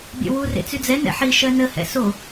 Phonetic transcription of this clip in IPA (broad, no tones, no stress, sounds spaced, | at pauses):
bʲ ɛ̰ w u r ḛ t͡s y d͡z ɛ n ɛ̰ ħ i ʃ ɜ n ə h ɛ̰ s o